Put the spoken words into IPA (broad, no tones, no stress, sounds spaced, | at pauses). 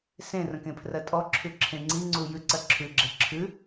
s ẽ r ə̃ k ẽ pʰ r ɜ tʼ ɔ ǁʰ ʉ ǁʰ ẽ ŋ͡ǀ i ŋ͡ǀ u j ʉ ǀ ɜ ǁʰ ʉ ɡ͡ǁ e ǁʰ ʉ